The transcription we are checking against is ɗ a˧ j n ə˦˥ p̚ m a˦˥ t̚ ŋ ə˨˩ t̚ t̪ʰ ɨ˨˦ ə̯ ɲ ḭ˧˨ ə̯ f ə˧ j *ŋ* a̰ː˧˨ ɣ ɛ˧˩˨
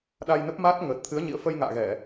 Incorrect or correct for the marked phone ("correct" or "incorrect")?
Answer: correct